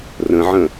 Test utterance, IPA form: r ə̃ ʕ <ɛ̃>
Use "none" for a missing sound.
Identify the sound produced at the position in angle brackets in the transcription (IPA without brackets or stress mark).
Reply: ə̃